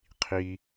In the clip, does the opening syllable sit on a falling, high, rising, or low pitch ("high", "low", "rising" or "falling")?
high